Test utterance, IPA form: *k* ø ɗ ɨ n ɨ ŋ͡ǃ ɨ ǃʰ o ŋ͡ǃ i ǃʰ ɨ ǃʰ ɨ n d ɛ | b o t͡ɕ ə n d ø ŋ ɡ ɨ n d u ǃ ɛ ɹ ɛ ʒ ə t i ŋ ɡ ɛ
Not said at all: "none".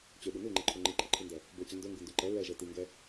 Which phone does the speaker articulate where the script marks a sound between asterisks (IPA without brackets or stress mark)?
t͡ɕ